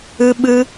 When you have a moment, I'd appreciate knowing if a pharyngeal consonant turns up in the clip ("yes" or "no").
no